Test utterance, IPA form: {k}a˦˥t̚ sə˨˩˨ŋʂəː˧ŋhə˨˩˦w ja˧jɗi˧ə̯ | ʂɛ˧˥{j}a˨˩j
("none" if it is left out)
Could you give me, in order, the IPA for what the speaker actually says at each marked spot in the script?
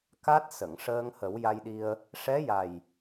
k, j

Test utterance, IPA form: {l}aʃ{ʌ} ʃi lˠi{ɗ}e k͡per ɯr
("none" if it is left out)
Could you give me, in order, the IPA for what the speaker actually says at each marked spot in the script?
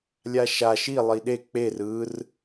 lʲ, a, ɗ

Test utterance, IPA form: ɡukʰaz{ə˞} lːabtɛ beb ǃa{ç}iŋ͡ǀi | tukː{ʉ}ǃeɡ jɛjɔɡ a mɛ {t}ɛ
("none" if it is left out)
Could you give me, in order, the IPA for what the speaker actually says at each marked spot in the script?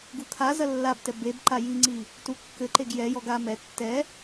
ɐ, j, ɘ, tː

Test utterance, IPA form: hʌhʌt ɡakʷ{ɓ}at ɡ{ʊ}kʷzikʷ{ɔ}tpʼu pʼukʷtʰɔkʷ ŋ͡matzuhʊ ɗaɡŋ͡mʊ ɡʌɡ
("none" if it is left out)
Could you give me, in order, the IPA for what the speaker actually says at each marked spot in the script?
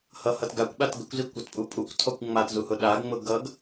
ɓ, ə, ʌ

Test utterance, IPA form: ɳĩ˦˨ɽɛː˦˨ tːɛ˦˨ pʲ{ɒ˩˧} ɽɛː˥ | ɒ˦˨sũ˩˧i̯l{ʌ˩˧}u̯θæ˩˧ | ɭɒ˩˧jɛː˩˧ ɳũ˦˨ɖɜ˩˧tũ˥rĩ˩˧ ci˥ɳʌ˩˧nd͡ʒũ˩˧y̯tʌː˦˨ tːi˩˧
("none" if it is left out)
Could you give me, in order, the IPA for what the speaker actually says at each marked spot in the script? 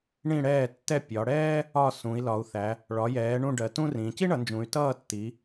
ɒ˩˧, ɒ˩˧

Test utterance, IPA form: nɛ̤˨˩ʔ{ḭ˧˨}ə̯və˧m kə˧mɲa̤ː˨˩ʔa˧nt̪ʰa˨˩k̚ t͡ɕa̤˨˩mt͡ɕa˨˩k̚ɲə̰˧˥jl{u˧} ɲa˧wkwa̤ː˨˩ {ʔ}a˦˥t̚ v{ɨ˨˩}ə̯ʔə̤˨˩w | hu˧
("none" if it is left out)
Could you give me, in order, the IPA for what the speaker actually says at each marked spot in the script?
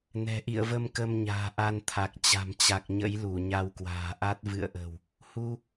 ḭ˧˨, u˧˩, ʔ, ɨ̰˧˨

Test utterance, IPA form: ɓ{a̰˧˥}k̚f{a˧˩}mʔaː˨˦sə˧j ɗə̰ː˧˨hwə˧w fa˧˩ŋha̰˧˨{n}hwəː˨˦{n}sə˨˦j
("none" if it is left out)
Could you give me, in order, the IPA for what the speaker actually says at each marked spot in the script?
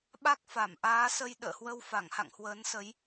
a˦˥, a˧˩, ŋ, n

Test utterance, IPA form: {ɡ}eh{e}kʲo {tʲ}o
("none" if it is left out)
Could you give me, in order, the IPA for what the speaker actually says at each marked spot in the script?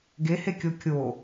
ɡ, e, kʲ

